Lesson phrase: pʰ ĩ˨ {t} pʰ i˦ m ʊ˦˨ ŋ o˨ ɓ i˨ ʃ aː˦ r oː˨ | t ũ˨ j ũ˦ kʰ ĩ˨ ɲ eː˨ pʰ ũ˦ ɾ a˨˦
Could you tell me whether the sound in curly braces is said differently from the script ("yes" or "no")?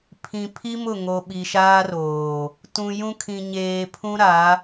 yes